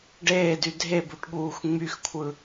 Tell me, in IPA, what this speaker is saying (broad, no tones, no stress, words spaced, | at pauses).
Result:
ɖeːdy dʱebuʈɠuːx ŋ͡myxkʷʰɯ